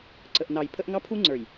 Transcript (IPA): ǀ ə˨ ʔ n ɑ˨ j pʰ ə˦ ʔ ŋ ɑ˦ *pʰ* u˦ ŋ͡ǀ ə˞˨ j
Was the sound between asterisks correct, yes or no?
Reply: yes